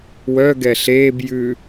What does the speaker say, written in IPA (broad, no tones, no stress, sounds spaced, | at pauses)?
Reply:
w œ ɡ ɛ ɬ eː b j ʉ